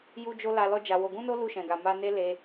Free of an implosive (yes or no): yes